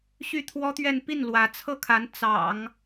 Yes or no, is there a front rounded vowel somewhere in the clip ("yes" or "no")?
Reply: yes